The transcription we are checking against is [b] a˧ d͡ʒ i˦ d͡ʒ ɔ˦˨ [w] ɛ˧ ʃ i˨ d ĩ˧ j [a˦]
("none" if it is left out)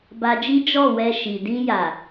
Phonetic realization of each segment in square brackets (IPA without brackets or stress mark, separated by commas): b, w, a˨